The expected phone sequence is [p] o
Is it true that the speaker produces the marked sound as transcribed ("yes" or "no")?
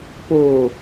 yes